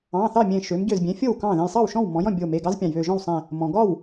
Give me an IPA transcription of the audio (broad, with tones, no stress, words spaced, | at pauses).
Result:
ɑ̃˩˧˩θɑ˥˩ mʲẽ˧˩ ʃø˩˧mɟø˧˩zbʲẽ˩˧ fʲo˥˩wkɑ̃˥˩ ðẽ˧˩jsˤɑ˥˩w ʃɔ̃˥˩wmɔ̃˩˧jɔ̃˥˩ bʲo˧˩me˩˧˩ɡɑ˦z pʲɑ̃˩jβø˧˩ʒɔ̃˥˩wsˤẽ˧˩ | mɔ̃˩ɡɒ˥˩w